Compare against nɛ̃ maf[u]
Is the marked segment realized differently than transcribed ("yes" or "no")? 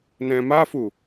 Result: no